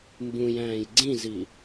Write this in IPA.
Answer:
mbũjæ̃ːj ɡ͡ǀĩzi

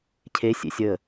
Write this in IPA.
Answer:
cʰesʲḛ sʲə

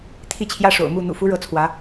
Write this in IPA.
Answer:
t̪ʰi˥˩t͡ɕʰjä˥ʂo̰˨˩ʊ̯mu˥˩ n̪ṵ˨˩fu˧˥ ɻɤ˧˥t͡sʰwä˧˥

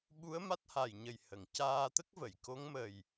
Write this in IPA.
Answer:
ɓu˧˥ə̯ ma˦˥t̚ha˨˩jɲə˨˩j hə˨˩˨ŋcaː˧t̪ə˦˥k̚və˨˩˨j ko˧˥ŋmə˨˩j

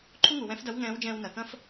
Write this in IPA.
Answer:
ǃʰu˥ŋu˩wɛ̃˧˥fdɐ˧˥w ŋɛ̃ː˧˥wd͡ʒɛ̃ː˧wnɐ˩kɐ̃˥f

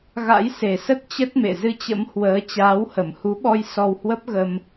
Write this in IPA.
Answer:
ɣa̰˧˥jse˨˩sə˦˥t̚ t͡ɕə˦˥t̚mḛ˧˨ zɨ˧t͡ɕə̰˧˥m hwəː˨˦ t͡ɕaː˨˦whə˧˩mhu˨˦ɓɔ˧j sɔ˧whwə˦˥p̚ɣə˧m

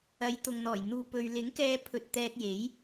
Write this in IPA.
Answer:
ɐ˨˥jt̪ʊ˨ŋn̪ɔː˨˩j n̪uː˨pɵ˨ɥ lɪ˨˥ŋkɛː˧pʰɵ˨t̚ t̪ɛː˧t̚je˨˥j

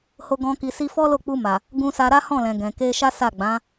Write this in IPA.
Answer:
ho˧ɡɔ̃˧ ki˧si˦ fɔ˦lo˦˨k͡pu˧ma˨ | ɡũ˧sa˧ ɾa˦hɔ̃˦˨ lɛ̃˨ ɡɛ̃˨ke˧ʃa˦ sa˦˨ɡ͡bã˨˦

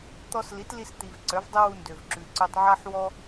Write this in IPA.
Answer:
t̪ɔ˧sli˨˦t li˧st̪i˨v ǀœ˨˦vdˤɪ˦wu˧ ndø˨vǁʉ˨ǀʉ˧tˤ ʕa˦ħwɔ˦

